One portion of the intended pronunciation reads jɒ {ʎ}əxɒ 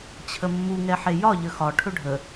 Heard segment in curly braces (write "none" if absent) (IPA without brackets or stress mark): ʎ